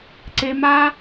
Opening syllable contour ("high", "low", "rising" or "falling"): high